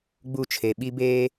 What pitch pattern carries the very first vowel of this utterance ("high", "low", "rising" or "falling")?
falling